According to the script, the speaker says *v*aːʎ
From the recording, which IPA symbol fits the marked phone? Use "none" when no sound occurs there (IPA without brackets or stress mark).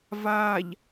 v